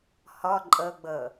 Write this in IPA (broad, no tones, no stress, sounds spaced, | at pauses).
h ɔ ǃʼ ɤ ɡ͡b ɤ